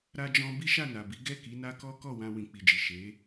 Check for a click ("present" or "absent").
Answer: absent